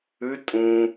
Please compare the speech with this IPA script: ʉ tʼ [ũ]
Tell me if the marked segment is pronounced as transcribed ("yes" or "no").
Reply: yes